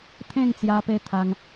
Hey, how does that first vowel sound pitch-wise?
falling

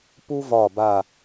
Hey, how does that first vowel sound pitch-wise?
high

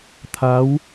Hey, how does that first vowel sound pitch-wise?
rising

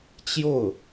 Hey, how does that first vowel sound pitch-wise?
falling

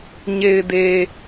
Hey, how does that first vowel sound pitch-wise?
low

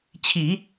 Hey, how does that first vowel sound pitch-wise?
low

